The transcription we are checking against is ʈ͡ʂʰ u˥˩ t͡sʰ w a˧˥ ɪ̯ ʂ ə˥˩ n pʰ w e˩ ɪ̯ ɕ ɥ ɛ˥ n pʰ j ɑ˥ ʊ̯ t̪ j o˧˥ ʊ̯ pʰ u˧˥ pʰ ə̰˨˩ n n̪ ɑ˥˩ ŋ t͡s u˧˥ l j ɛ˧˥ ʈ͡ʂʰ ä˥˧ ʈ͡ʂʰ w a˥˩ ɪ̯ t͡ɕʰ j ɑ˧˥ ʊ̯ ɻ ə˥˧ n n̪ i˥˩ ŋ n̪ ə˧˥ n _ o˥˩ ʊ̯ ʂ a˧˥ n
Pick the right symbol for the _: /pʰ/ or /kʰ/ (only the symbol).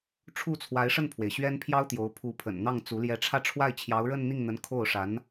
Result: kʰ